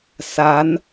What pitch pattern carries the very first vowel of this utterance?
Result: rising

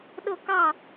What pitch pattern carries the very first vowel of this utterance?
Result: falling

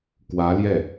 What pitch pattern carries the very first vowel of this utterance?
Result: rising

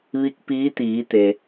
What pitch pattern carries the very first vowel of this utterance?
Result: rising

